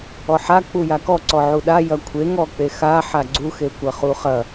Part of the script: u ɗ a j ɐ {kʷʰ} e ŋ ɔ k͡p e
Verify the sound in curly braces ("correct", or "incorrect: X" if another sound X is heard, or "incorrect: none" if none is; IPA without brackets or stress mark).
correct